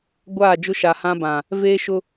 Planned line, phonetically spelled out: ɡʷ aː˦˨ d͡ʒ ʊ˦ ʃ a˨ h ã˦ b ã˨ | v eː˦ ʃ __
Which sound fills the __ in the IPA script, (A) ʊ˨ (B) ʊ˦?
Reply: B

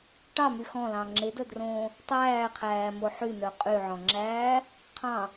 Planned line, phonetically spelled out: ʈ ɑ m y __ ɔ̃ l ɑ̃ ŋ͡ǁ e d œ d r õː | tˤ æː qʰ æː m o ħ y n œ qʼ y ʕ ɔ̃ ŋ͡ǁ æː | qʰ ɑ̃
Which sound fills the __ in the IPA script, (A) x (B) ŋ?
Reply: A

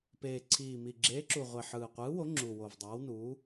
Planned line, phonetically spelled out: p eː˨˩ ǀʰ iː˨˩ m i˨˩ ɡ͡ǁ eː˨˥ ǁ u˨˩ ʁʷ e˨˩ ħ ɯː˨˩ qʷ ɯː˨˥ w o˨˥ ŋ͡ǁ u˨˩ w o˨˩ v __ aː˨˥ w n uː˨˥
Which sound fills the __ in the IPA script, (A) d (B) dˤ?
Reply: B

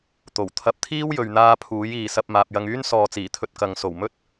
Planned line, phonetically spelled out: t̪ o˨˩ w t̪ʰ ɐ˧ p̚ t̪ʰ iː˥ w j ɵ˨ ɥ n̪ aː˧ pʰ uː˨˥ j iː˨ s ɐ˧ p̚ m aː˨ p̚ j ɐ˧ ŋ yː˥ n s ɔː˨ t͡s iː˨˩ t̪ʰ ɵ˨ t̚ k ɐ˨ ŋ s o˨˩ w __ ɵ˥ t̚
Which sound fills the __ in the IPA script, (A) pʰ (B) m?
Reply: B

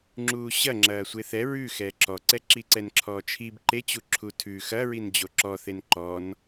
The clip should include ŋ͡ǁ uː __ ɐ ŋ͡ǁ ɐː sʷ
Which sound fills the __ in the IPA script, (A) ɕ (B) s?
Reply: A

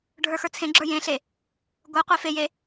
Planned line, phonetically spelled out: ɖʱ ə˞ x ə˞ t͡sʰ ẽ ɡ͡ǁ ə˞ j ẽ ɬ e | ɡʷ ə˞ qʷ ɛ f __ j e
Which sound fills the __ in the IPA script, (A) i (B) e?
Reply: B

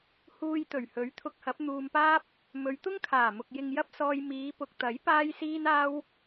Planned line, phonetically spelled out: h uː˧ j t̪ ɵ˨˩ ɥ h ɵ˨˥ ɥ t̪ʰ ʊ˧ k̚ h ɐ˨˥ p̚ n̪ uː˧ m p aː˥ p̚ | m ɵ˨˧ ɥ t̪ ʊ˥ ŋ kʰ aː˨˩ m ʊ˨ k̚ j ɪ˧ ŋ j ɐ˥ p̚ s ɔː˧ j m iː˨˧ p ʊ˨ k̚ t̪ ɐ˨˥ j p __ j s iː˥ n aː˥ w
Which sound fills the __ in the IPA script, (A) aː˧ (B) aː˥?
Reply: B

